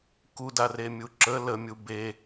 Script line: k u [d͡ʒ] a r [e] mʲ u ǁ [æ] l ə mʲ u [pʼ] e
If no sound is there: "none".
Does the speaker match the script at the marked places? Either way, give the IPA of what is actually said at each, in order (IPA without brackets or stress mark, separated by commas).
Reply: d, e, ə, b